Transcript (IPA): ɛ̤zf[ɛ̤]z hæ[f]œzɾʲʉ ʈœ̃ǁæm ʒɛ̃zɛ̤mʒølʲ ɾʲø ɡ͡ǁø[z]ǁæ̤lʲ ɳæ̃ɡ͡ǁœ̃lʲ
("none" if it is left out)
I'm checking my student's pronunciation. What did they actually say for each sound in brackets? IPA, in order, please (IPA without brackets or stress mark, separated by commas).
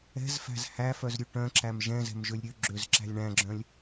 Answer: æ̤, f, z